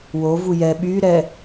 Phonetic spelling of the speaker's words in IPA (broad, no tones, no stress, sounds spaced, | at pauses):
w o v u j ɛ ɓ y ɾ ɛ